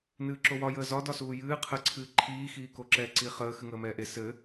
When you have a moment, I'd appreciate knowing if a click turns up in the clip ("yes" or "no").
yes